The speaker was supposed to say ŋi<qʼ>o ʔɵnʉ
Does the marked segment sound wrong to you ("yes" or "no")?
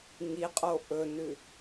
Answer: no